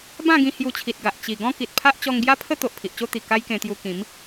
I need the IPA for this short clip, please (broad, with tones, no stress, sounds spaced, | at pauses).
b ã˥˧ ɡ ĩ˧ h j u˧ t͡ɕʰ i˨ t̚ ɡ a˨ ʔ t͡ɕ i˨˩ ɡ ɔ̃˦ k i˨ t̚ pʰ a˦ ʔ t͡ɕ ɔ˧ ŋ ɡ j a˦ pʰ ə˦ t̪ o˨ ʔ pʰ i˨ ʔ t͡ɕ o˦ t̪ i˨˩ k a˦ j k ẽ˧ t̪ j u˧ k ĩ˨˦ m